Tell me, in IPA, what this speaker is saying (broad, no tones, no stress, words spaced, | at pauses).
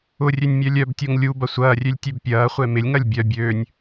ʊrʲønʲ mʲœlʲœbtʲoŋ lʲu bɐsʷɐːrʲølʲ tʲøbpʲɐːχʷɛ mɪlʲŋɐlʲ bʲœ bʲøːnʲ